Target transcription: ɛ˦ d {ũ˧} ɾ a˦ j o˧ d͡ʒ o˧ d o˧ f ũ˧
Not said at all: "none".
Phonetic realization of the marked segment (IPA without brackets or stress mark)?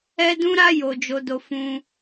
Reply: ũ˦